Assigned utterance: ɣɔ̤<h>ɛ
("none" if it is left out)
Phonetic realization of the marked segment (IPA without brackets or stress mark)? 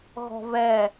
β